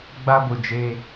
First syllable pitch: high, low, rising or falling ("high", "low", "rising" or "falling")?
high